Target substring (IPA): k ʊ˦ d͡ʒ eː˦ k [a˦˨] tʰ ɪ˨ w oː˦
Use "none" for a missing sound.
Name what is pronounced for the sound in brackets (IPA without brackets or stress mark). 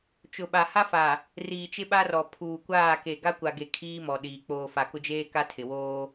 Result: a˦